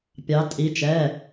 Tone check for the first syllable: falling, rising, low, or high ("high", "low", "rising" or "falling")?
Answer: rising